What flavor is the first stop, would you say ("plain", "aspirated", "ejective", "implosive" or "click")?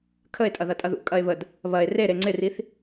aspirated